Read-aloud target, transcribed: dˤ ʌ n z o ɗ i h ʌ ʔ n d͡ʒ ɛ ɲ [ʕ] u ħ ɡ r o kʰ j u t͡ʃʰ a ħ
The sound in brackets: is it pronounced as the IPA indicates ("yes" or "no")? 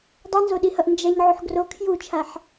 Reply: yes